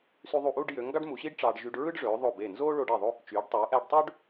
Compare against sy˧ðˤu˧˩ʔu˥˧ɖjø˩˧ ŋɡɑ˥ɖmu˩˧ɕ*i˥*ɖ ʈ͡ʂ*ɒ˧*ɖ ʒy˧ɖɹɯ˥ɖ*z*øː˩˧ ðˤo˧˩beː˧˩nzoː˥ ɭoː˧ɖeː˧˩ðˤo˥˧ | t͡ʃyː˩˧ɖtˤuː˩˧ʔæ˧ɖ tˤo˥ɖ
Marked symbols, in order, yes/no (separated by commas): yes, no, no